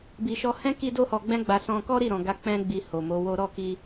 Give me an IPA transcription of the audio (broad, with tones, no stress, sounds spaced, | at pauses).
b i˨ ʃ ɔ˧ h ɛ̃˦ k i˦ d o˦ h ɔ˧ ɡ͡b ɛ̃˦ ɡ͡b a˧ s ɔ̃˧ k ɔ˦ ɾ i˦˨ ɾ ɔ̃˨ ɡ a˧ k͡p ɛ̃˦ ɡ͡b i˧ h o˨ m o˨˦ w o˦ ɾ ɔ˦˨ k i˧